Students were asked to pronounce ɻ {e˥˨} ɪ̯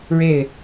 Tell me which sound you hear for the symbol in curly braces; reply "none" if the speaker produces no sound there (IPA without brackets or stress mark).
e˥˨